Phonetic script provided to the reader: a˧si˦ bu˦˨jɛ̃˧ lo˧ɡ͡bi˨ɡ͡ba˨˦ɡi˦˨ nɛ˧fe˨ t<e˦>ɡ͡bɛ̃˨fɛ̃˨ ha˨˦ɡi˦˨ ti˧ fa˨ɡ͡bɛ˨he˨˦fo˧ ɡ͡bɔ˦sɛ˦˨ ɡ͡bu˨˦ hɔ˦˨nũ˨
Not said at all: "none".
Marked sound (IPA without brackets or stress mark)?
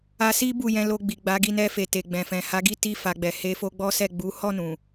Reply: e˨